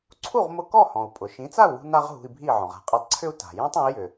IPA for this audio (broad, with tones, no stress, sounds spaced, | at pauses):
ǀʰ u˥˩ ʁ m ʊ˧ k ɔ˥˩ h ɔ̃˩ u̯ pʼ ʊ˩ ʃ ĩ˩˥ t͡s a˥˩ u̯ w ṳ˧ n a˥ ʁ ɦ ṳ˧ i̯ bʱ i˥˩ ʕ ɔ̃˩ ʁ a̤˥˩ qʼ i˧ tˤ ǀʰ ʏ˥ u̯ t a̤˩ j ɔ̃˥ tˤ ã˩˥ i̯ j ʏ˩